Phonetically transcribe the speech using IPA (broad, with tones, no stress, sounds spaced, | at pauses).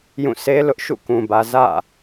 j ũ˦˨ s e˦ l ʊ˦ ʔ ʃ ṵ˦˨ k ũ˨ b ä˨ z ä̰˦˨